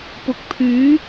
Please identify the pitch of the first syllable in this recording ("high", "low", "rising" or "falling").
rising